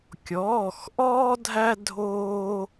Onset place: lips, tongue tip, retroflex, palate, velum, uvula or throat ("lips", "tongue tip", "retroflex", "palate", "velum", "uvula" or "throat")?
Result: velum